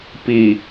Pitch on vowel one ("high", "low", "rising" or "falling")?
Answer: low